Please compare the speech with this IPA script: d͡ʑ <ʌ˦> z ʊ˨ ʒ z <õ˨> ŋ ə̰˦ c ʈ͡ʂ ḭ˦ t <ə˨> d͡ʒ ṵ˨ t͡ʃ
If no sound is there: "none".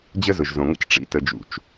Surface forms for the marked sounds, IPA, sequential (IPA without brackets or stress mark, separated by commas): ə˦, õ˨, ə˨